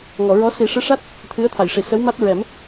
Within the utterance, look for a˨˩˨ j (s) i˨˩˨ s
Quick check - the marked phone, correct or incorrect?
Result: incorrect